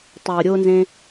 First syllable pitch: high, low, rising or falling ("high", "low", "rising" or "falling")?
low